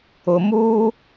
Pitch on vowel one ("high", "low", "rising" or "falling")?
low